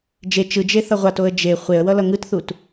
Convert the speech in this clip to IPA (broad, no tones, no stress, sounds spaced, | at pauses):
d͡ʒ e t͡ʃ ɯ d͡ʒ e θ ʌ ʁʷ a t o ə̯ d͡ʒ e χʷ e ə̯ w ʌ l ʌ ŋ ɯ t θ u t